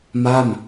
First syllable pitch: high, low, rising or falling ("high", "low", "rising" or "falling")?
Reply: falling